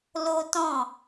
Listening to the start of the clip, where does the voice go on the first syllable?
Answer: high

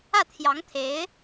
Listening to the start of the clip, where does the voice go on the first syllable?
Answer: falling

